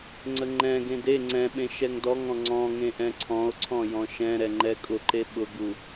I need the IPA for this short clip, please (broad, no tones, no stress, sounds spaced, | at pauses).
ŋ͡ǀ ə ŋ͡ǃ ɛ̃ ɡ ẽ d e ŋ͡ǀ ɛ̃ ɓ ẽ ʃ ɛ ŋ d ɔ ŋ ɔ̃ ŋ͡ǀ ɔ̃ ŋ ẽ ʔ ɛ̃ ǀʰ ɔ̃ o̯ ǀʰ ɔ̃ j ɔ̃ ʃ ɛ̃ ɾ ɛ ŋ͡ǃ ɛ kʼ ʊ ǃ e ɓ ʊ ɡ u